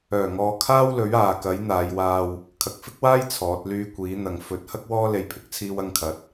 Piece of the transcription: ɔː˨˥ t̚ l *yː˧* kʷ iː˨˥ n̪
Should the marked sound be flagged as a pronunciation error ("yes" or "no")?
no